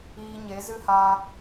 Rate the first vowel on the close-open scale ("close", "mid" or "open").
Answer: close